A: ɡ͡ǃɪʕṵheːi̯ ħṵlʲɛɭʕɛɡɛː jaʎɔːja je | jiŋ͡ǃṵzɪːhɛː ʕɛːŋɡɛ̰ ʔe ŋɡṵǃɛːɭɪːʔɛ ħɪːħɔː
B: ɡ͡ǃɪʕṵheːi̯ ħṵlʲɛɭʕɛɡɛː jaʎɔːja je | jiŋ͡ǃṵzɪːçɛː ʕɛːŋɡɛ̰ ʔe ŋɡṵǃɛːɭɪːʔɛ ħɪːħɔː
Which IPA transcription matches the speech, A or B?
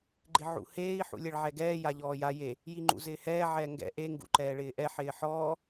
A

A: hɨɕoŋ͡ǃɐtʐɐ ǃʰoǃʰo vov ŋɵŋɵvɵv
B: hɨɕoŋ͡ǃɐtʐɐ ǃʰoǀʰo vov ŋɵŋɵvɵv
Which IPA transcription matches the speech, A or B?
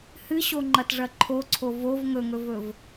B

